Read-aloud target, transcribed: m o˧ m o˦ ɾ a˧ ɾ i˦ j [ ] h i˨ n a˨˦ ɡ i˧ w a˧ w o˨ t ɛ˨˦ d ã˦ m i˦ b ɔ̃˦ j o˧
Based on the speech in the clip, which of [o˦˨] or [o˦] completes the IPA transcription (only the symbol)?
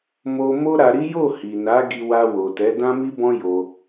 o˦˨